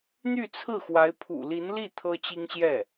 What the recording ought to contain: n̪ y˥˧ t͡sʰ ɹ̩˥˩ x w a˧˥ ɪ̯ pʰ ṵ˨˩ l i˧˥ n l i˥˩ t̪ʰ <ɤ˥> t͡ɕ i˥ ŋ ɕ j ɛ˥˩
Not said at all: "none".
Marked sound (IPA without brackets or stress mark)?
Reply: ɤ˥